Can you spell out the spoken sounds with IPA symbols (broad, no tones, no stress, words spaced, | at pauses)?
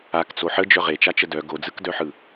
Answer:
akt͡so ħəd͡ʒœ ʁet͡ʃat͡ʃə dœ ɡod͡zɯkdœħɯ